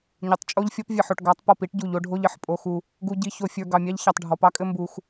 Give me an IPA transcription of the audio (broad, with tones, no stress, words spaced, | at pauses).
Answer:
ɲʊ˨tˤt͡ʃʼo˦ʎfʲɔ˦p vʲɘ˨ħo˨ʈɡɑ˨˦tˤ pɔ˦˨pi˦ʈɟu˨ʎ o˦ɖʱo˦ʎ ɘ˦ħpʼo˦xu˦ | ɡu˨ɟi˨ ço˨fʲə˞˨ ɡɑ˨mʲɑ˦ʎ çɑ˨tˤɖʱɔ˨pɑ˦kʼɘ˦ mbu˦x